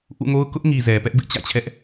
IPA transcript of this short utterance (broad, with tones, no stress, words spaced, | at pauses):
ʔṵ˦˨ŋo˦ʊ̯ kʊ˦ʔŋi˨ zɛ˨ pɛ˦ʔbɪ˦ʔt͡ɕä̰˦˨t͡ɕʰɛ˦ʔ